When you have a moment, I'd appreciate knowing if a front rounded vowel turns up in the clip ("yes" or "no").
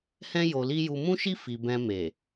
no